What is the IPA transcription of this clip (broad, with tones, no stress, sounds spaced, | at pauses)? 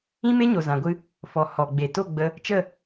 ĩ˦ m e˦ ɲ o˨ z ã˨ ɡʷ ɨ˧ | f ɔ˨ h ɔ˨ ɡ͡b e˨ t o˦˨ ɡ͡b ə˧ | t͡ʃ ə˦˨